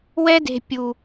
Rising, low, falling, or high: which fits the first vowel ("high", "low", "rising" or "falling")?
high